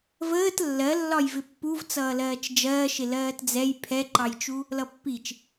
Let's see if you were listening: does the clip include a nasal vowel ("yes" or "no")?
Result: no